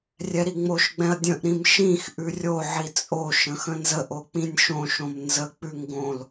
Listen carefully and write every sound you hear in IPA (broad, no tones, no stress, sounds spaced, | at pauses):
rʲ ɛ ɾ i ŋ͡m o ʃ ɡ͡b ɛ̃ ɐ̯ dʲ ə̃ ʔ ɾ ĩ m ʃ ĩ x ʔ ʉ rʲ o ʕ i t͡sʼ o ʃ ə̃ x ə̃ n z ə ʔ o k͡p ĩ nʲ ʃ õ ʃ õ m n z ə k͡p ʉ ŋ ɡ õ l